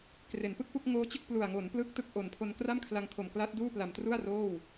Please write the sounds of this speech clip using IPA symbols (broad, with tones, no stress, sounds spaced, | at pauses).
k r e˩˦ n p ɯ˥˩ k̚ p u˥˩ k̚ ŋ oː˦˥ t͡ɕ ɯ˥˩ k̚ p l u˨˩ a̯ ŋ o˩˦ n p l ɯ˦˥ k̚ t ɯ˦˥ k̚ ʔ o˨˩ n pʰ o˧ n k r a˥˩ m kʰ l a˧ ŋ kʰ o˨˩ m k l a˦˥ t̚ d uː˥˩ p l a˨˩ m t r u˥˩ a̯ r oː˥˩ w